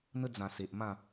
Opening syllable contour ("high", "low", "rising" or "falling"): high